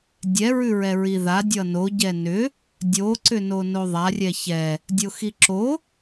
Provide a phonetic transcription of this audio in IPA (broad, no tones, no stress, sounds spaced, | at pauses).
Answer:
dʲ ɛ ɹ ʉ ɹ ɛ ɹ i ð a dʲ ʌ n o ɟ ɛ n ʏ | dʲ o ǀ ʏ n o n o ðˤ a rʲ ɛ ç ɛ | dʲ o x i ǁ o